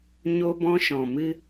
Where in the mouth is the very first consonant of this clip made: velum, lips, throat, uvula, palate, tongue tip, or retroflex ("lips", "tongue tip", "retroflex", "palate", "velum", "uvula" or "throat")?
palate